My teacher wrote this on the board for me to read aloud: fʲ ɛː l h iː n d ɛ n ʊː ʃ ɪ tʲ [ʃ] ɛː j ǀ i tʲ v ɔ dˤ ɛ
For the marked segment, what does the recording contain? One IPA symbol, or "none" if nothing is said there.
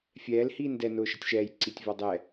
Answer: ʃ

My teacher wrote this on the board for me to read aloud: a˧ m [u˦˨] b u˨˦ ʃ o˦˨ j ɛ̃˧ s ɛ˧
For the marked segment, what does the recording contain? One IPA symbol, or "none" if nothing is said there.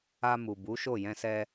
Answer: u˨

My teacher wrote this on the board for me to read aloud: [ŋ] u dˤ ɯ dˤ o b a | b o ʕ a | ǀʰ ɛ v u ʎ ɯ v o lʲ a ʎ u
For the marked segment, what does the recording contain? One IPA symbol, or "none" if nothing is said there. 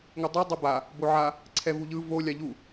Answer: ŋ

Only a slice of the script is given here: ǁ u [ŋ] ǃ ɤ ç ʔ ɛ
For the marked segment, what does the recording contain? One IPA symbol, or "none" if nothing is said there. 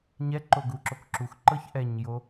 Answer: x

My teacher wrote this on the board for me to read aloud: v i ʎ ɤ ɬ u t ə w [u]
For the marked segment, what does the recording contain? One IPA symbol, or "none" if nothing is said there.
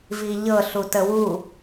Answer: u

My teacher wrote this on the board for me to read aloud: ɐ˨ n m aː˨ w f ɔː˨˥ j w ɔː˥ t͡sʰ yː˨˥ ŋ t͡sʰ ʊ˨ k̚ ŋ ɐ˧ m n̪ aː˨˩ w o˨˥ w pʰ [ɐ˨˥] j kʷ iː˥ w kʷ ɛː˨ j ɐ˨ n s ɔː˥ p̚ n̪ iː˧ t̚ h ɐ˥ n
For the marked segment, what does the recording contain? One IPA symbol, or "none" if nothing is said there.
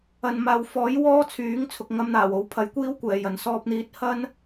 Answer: ɐ˨˥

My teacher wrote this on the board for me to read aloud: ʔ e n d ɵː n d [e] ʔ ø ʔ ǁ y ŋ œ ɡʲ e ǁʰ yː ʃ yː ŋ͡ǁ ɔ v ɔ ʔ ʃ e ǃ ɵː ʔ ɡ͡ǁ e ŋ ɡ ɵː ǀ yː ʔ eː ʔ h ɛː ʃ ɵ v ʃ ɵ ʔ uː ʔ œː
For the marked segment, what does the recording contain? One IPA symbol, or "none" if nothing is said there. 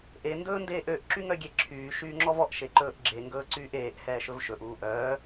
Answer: eː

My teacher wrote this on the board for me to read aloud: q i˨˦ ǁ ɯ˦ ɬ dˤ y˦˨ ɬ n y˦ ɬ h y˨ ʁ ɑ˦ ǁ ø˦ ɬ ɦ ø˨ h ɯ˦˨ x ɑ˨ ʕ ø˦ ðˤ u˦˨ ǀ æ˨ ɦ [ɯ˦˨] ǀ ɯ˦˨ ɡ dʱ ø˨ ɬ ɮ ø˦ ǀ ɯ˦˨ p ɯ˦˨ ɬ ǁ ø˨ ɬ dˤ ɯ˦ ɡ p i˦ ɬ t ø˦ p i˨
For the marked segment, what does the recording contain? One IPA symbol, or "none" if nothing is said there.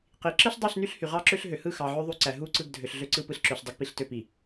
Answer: u˦˨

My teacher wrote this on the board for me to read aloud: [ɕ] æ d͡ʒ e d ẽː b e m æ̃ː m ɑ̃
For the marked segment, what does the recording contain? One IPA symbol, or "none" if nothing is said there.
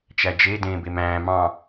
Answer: t͡ʃ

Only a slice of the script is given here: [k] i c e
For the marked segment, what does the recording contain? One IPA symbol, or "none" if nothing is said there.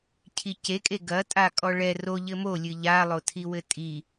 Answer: cʰ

